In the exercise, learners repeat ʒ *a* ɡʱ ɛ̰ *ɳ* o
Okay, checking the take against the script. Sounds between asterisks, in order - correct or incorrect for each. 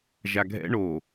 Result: correct, correct

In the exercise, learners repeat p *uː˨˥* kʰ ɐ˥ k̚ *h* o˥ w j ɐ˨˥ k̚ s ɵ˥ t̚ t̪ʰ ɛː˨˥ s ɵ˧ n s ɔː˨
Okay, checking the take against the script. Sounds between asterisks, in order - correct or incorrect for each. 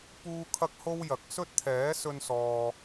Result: incorrect: uː˥, correct

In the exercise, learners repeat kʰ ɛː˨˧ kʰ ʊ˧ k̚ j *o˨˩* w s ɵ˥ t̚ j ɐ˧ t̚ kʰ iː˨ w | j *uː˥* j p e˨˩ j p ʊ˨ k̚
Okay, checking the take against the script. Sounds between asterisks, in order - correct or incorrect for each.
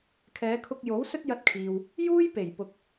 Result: incorrect: o˨˥, correct

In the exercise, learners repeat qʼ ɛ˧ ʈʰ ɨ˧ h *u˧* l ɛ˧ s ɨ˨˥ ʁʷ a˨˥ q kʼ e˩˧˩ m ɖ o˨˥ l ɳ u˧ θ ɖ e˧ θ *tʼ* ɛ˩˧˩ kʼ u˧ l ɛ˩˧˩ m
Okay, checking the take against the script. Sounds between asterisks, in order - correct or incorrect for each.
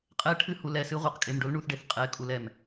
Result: correct, incorrect: qʼ

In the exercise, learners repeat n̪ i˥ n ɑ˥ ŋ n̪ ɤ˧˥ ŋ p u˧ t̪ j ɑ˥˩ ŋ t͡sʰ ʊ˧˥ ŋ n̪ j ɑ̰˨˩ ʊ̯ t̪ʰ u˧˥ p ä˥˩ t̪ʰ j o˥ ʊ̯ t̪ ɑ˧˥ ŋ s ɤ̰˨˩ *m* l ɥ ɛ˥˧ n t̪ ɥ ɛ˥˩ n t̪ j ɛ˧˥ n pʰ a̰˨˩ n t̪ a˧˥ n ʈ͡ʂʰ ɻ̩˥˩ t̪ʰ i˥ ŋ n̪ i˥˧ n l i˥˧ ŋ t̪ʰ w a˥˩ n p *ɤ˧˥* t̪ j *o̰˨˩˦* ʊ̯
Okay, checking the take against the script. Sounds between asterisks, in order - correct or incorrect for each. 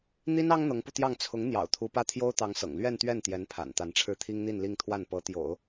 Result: incorrect: ŋ, correct, correct

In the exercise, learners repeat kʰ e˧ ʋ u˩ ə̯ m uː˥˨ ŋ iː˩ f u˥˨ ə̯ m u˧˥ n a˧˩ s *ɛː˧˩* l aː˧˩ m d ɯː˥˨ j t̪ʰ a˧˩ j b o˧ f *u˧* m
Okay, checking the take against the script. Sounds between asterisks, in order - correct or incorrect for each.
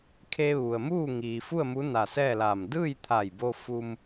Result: incorrect: ɛː˥˨, correct

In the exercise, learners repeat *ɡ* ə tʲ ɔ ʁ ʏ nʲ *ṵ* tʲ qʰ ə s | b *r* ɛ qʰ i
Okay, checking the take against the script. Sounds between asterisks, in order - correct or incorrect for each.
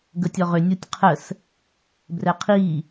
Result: correct, incorrect: u, correct

